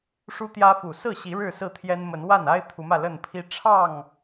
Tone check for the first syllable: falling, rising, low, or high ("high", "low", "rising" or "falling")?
high